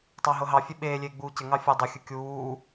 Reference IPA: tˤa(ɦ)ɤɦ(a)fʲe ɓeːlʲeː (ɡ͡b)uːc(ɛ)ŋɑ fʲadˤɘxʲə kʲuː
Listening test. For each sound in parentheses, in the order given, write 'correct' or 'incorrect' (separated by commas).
correct, incorrect, correct, incorrect